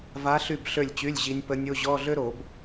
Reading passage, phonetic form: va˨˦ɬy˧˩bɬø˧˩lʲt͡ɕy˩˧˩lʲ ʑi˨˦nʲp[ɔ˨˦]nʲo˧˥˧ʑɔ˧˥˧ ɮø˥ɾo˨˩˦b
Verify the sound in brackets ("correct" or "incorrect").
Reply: incorrect